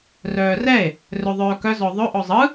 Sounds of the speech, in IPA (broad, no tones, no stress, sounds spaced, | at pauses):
r œː r ɛ e̯ | r ɵ ðˤ œː k œ z ɔ ðˤ ɵ ʔ ɔ zˤ ɯ